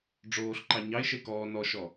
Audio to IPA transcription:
ɖ͡ʐoːɬǃɑ ɲɑɪ̯ʃe kɔː nɔʃɔ

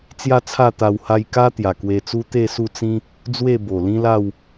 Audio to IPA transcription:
t͡sja˥˧t͡sʰa˥˧t̪a˧w ha˧jka˦ t̪ja˨˩kwe˧t͡su˦ t̪e˥˧su˥˧t͡sĩ˦ | d͡zwe˥˧bo˨˩lĩ˦la˥˧w

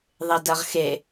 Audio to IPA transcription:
ðˤedɐʁxe

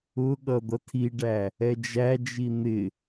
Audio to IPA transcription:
ʊɠʌ d̪ʌtʰiɖæ | ɛd͡ʒæd͡ʒi n̪ɪ

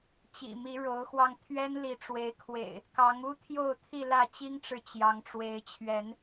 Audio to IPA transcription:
t͡ɕḭ˨˩mi˨˦ɻo˨˦ʊ̯xwɑ˧ŋ t̪ʰɥɛ˦nli˨˦ʈ͡ʂwe˨˦ɪ̯kʰwḛ˨˩ɪ̯ | kɑ˨˦ŋu˦t̪ʰjo˥˨ʊ̯ t̪ʰi˥˨lä˥˨ t͡ɕi˦ŋʈ͡ʂɻ̩˨ t͡ɕjɑ˨˦ŋʈ͡ʂwe˨˦ɪ̯t͡ɕʰɥɛ˨˦n

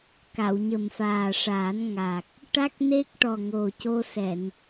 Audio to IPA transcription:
ka˨˩˨wɲə˨˩mfaː˨˩ʂaː˨˩˦n ŋa˨˩k̚ | ʈa˦˥k̚ne˦˥k̚ʈɔ˨˩ ŋo˨˩co˧sɛ˨˩˨n

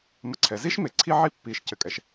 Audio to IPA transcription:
mɐ˧ǀʰɛ˩˧zi˥ʃme˩˧ ǀʰi˥˧ ʕi˥ pːi˧˩ʃ cɘ˧kʼɛ˧ʃ

